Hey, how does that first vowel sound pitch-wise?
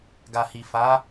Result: low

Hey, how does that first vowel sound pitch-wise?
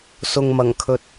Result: low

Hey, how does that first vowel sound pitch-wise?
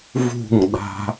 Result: falling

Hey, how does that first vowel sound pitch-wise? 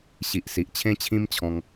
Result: low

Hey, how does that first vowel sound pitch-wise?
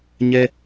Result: high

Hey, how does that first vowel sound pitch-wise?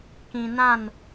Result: low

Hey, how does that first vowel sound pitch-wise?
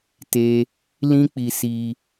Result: high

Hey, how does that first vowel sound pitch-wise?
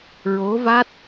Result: rising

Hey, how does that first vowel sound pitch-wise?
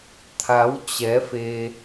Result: rising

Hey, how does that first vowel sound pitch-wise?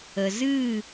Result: low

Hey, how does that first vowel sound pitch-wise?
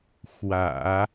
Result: low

